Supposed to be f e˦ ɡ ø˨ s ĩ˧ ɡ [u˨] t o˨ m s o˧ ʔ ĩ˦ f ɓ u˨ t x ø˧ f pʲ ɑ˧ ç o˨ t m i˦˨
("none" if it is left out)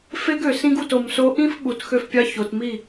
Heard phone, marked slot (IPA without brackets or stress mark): u˨